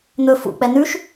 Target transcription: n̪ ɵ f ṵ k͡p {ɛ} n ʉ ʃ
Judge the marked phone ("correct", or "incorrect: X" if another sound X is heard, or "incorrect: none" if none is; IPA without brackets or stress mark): correct